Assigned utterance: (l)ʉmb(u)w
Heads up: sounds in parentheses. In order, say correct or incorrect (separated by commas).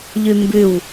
incorrect, incorrect